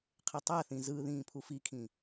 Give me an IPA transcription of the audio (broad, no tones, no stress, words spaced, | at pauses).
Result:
qʰetˤaθĩ zɯ ðĩːpʰufikʰĩ